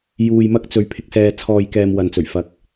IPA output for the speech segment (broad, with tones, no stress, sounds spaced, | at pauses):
j uː˨ j m ɐ˧ k̚ t͡s ɵ˨ ɥ pʰ ɪ˨ k̚ s ɛː˨ t͡sʰ ɔː˨ j k ɛː˨ m w ɐ˨ n t͡s ɵ˨˩ ɥ f ɐ˨ k̚